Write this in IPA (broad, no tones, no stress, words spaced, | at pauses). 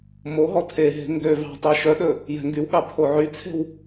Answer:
moɦɔ tʰeɦe̤ ŋɡø vɑ̤tˤe ʃœɗɵ | jɛ̤ŋɡywɠɑ pʰoʕyt͡sʰe̤w